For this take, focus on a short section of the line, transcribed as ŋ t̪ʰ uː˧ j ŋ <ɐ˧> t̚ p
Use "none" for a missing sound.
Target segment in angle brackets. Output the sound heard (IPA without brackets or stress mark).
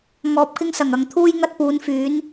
ɐ˧